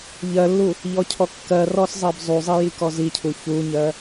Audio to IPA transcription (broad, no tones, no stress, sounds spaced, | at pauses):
ʎ ɜ lː u | ʎ ɔ cʰ ɔ kː ɜ r ɔ s zˤ ɜ b zˤ u zˤ i j i k ɔ z i cʰ u ç u ɲ ɜ